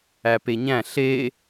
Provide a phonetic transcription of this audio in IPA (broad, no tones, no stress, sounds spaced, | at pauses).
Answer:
æ p e ɲ æ̃ ɬ e